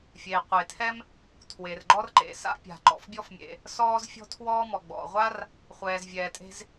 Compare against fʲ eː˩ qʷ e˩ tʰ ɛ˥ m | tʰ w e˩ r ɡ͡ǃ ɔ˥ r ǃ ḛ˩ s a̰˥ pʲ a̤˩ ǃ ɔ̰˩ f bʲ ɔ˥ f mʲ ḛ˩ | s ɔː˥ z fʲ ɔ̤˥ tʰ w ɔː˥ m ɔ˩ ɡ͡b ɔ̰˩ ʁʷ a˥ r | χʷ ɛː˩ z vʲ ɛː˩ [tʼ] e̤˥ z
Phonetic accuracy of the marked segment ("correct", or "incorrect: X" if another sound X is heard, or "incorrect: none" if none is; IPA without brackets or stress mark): correct